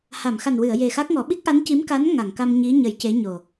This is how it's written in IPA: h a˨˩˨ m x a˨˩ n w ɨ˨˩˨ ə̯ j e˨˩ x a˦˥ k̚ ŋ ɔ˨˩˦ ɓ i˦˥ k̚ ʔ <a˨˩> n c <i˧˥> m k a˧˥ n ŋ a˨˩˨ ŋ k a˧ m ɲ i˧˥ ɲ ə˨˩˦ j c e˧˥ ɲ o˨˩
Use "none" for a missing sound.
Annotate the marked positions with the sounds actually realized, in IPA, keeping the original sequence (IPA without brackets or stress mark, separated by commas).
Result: a˧˥, i˧˥